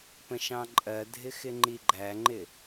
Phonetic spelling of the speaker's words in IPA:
pə̃ʃɑ̃ǃʼɜdʱɪ xɪŋ͡ǃiɡ͡ǃæŋ͡ǃɪ

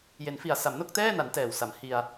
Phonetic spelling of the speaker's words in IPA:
je˩˦nfi˨˩a̯ sa˩˦mno˥˩k̚tɛː˥˩na˩˦n tɛː˨˩wsa˩˦m hi˧a̯

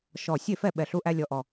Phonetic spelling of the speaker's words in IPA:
ʃɔ˧˩ sʲe˥˩fɛ˥˩ ɓɛ˧˩ɬu˦ʔæ˦ lʲɔ˧˩ʔɔ˧˩

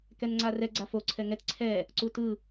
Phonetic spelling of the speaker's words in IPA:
kɛnŋ͡ǀarɛ ɡ͡ǀafo ǀʰɛŋɛt ǀʰɛ | ǀutɯ

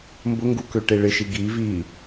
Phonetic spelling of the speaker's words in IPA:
mbʊŋɡukø ʈeɭɪʃi ɡi vi

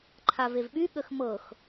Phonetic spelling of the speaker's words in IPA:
ǃʰavevɓy ɠəxmɤx

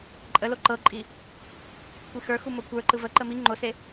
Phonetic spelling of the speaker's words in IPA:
ǃʼə loǃɤǃʼi | kʷixə˞xu mokʷə˞ǃɯ vəǃə mi ŋ͡ǃose

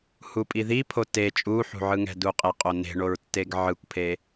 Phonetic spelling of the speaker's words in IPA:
hupʼiðipʰo te t͡ʃʼuħṳʕɯŋɛ̤ duqʼeqʼone̤ ɳoɹtːeɡʕɯkʷpʰe

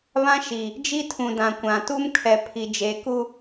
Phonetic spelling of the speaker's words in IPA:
βã˦ʃi˨ | d͡ʒi˦tʰũ˨dã˨kʷã˨ tu˦mkʰɛ˨pʰi˨ d͡ʒe˨˦ku˦

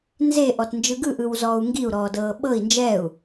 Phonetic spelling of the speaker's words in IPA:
nze ʔɔtnd͡ʒɯɡɯ ʔɯwzɔːu̯ŋɡiu̯ ɾɔːdɤːɓɤi̯ nd͡ʒɛu̯

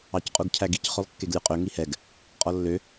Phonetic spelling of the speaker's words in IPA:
ɑcqʼuɡcʰæɡic χølˠkːeɡlʲʉqʼø ŋihɛɡ | qʼɔlːø

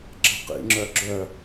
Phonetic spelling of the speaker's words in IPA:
ǁə̤qḭŋ͡ǁœ ɡ͡ǁœ

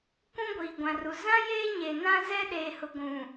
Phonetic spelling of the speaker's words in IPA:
kʷũ˦ɡʷiː˨ɡʷã˨ru˨ zã˦ jeː˦ɲe˨ nã˦ zɛ˦ɗeː˨hʊ˨ɡʷũ˨

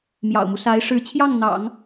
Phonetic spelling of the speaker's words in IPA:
mjɑ̰˨˩ʊ̯mu˦ sa˧˥ɪ̯ ʂɻ̩˧˥t͡ɕʰjɑ˥˩ŋ n̪ɑ̰˨˩˦ŋ

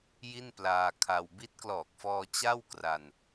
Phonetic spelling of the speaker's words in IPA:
ji˥˩nplaː˧ kʰa˧w bi˦˥t̚klɔː˨˩k̚fɔː˧ t͡ɕa˥˩wkra˧n

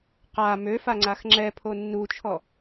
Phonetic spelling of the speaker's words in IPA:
qa møfaŋ͡ǀax ŋ͡ǁɛpʰo nːut͡ʃʰɔ

